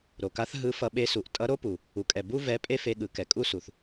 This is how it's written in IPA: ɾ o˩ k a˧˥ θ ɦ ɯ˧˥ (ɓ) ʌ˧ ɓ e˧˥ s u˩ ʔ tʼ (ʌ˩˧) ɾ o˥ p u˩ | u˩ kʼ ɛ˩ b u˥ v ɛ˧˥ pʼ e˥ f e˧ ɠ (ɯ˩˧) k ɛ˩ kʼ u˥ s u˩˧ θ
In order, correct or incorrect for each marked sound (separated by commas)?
incorrect, incorrect, correct